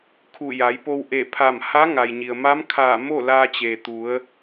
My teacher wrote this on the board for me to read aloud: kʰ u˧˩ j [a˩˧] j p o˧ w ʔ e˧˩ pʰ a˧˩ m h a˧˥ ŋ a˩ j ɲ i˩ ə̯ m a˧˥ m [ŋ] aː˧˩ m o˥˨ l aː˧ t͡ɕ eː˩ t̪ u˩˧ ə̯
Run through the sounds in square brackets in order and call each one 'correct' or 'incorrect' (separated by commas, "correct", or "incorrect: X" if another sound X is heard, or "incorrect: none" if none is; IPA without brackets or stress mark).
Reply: correct, incorrect: kʰ